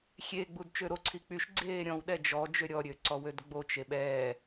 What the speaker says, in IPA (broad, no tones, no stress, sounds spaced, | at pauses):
xʲ e ɡ͡b u d t͡ʃ ø ɾ o ǀʰ i k͡p y ʃ ɡ͡ǀ eː ɾʲ ɔ̃ w ɗ ɛ d͡ʒ ɔ d͡ʒ ø ɾʲ ɔ ɾʲ ø ǀ ɔ w ø d ɡ͡b o t͡ʃ e ɓ ɛː